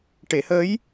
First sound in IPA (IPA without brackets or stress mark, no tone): ʈ